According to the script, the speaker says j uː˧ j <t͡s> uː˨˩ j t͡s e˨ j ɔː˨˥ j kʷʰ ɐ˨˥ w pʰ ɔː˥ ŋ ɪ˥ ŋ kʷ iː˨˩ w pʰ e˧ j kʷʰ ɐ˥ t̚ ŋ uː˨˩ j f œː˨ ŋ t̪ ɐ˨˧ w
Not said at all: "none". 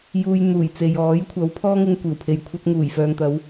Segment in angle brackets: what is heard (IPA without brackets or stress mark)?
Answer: n̪